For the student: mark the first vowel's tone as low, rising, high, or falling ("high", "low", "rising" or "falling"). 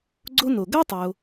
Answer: high